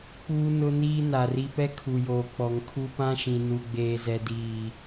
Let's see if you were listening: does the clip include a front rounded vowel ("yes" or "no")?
no